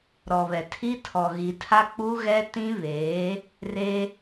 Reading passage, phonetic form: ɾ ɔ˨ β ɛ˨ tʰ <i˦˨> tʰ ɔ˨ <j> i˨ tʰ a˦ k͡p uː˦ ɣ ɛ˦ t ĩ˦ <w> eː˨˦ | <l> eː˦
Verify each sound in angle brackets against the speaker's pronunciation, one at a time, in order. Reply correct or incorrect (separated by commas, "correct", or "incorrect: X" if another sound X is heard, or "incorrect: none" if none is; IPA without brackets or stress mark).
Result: incorrect: i˦, incorrect: ɣ, incorrect: β, incorrect: r